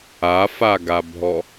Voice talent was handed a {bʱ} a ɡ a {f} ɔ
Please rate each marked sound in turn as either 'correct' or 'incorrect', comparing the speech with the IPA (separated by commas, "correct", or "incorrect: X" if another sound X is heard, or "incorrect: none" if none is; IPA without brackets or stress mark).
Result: incorrect: f, incorrect: bʱ